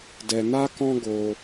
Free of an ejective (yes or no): yes